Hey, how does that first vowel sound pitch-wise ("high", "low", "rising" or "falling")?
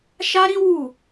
high